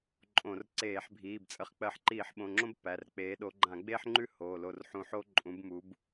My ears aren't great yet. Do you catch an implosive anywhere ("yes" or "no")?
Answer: yes